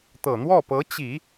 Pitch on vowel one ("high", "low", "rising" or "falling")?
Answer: low